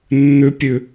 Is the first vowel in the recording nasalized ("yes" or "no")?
no